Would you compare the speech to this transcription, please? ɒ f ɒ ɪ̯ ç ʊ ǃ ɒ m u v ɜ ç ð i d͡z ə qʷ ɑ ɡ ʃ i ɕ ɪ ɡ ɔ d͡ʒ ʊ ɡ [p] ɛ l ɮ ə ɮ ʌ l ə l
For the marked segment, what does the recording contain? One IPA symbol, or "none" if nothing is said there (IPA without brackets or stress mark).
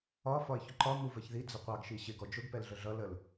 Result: p